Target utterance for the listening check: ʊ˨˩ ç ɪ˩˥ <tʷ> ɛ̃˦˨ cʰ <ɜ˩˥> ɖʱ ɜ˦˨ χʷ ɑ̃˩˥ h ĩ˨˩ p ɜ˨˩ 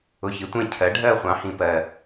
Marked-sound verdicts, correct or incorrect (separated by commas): correct, correct